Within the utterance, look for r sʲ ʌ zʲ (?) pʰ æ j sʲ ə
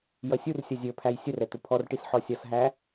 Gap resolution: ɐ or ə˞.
ə˞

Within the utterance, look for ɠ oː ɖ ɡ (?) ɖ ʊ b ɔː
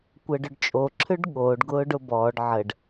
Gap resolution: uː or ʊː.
ʊː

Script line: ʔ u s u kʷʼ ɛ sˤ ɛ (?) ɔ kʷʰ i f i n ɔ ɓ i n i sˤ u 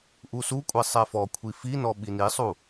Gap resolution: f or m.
f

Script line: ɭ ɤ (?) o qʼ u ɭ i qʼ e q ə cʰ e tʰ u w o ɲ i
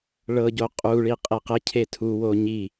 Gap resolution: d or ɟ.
ɟ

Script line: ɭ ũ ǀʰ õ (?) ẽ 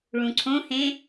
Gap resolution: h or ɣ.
h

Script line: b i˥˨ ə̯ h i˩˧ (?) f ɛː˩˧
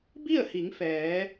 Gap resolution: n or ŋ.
ŋ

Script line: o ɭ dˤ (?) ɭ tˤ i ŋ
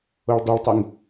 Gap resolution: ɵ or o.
ɵ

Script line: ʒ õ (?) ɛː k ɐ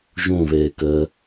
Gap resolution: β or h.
β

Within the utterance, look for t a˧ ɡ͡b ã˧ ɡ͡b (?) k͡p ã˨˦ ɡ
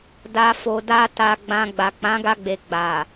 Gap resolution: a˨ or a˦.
a˨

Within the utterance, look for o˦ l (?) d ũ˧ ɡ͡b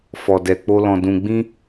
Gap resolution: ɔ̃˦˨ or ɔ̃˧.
ɔ̃˧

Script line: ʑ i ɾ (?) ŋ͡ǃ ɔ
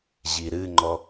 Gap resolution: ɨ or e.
ɨ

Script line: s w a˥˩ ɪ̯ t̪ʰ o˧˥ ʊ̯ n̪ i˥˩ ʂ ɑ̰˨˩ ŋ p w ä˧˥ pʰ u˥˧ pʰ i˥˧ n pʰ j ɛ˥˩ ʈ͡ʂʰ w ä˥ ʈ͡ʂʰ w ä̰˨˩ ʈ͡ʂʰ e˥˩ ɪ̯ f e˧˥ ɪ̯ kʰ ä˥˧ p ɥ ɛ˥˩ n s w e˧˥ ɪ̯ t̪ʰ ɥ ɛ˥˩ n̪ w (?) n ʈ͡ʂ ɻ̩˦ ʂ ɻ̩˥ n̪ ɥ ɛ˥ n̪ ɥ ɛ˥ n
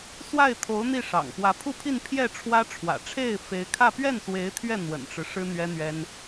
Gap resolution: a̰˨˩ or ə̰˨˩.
ə̰˨˩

